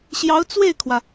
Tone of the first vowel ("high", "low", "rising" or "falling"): rising